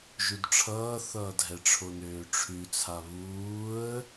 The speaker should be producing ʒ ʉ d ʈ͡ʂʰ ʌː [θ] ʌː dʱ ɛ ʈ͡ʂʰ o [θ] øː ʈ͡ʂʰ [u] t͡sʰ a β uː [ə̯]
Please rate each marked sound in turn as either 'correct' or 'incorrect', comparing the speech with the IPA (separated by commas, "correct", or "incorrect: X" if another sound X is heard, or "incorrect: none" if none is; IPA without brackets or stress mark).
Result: correct, incorrect: n, incorrect: ʉ, correct